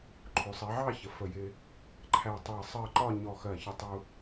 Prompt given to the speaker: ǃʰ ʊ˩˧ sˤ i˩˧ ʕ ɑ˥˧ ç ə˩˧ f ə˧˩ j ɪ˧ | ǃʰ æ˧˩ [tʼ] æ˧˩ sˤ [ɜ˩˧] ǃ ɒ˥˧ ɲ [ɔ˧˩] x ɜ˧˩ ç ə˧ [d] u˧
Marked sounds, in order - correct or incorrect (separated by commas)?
incorrect, incorrect, correct, incorrect